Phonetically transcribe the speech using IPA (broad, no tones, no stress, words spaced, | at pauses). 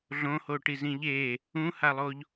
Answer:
ɮõho ʈizĩʎe | ũhalˠoʎ